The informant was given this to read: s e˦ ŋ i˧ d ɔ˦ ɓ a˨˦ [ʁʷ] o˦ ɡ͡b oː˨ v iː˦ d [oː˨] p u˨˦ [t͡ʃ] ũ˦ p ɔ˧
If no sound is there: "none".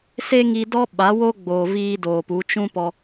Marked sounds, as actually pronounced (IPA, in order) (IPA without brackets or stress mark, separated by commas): w, oː˨, t͡ʃ